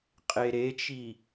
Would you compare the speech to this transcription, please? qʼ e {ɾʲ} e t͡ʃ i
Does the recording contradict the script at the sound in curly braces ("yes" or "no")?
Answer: yes